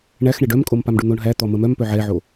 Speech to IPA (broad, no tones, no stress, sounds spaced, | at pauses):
ɳ æ x ɳ ɛ ɖ œ m kʼ o m p a m ɖ u n̪ o ɳ ɦ æ t̪ ɔ m ə m œ m p œ ʕ ɛ ʕ o